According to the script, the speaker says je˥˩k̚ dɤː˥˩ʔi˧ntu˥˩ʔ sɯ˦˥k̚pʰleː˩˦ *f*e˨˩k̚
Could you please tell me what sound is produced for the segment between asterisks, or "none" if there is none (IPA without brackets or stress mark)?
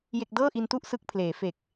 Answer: f